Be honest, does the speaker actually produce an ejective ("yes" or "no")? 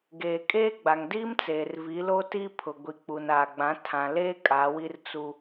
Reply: yes